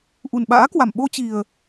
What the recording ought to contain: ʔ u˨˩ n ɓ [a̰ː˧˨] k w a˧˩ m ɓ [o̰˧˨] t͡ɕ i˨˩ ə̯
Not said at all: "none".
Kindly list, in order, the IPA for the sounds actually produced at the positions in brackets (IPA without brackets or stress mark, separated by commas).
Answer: a̰ː˧˥, o˧